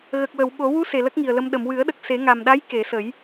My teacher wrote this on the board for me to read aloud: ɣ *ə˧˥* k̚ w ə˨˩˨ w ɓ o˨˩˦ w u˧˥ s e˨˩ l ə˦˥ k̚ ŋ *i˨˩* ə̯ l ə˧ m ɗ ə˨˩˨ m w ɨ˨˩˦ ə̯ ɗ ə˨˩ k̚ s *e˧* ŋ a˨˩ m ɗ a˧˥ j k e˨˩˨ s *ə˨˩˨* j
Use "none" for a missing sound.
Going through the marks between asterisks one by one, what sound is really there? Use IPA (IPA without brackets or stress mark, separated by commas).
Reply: ə˨˩, i˨˩, e˨˩˦, ə˨˩˦